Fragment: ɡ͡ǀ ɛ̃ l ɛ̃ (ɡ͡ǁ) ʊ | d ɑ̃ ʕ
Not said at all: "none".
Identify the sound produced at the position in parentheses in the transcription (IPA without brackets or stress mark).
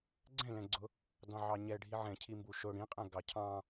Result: ɡ͡ǀ